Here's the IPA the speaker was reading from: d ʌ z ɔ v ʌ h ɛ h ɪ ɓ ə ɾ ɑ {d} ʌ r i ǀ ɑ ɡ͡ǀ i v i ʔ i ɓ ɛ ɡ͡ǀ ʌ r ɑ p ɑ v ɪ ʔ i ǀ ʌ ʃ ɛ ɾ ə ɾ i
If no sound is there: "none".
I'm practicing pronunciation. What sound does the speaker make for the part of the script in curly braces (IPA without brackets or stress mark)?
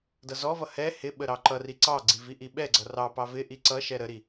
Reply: ǃ